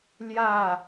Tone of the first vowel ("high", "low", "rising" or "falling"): falling